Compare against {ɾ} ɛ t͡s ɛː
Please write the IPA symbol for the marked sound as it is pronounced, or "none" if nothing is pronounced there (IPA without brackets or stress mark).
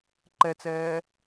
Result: ǃ